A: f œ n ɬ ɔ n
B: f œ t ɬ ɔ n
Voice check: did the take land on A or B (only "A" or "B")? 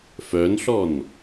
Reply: A